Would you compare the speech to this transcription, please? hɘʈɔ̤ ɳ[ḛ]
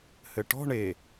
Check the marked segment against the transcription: incorrect: e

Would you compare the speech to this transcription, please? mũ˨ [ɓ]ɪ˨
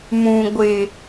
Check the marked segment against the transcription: incorrect: ɡʷ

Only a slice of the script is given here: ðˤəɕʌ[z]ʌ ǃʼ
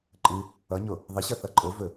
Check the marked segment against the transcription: incorrect: θ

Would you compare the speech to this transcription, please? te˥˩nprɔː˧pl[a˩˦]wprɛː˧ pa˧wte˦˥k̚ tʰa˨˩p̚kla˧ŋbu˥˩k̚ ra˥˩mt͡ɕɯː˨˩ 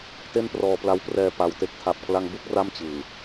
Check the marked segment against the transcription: incorrect: a˦˥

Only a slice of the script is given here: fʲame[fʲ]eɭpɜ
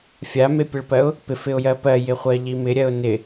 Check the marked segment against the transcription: incorrect: pʲ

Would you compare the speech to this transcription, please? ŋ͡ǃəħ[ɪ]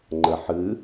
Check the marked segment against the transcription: incorrect: ɨ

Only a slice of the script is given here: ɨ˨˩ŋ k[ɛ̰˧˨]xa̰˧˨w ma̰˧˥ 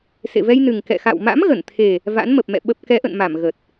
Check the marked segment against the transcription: correct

